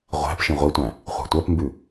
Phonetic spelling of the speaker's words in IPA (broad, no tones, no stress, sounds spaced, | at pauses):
ʁʷ æ̤ p ʃ ĩ ʁʷ i tʷ æ̃ | χʷ a̤ tʷ ɜ p m b ʉ